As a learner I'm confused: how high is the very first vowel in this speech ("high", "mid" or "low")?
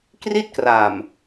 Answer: high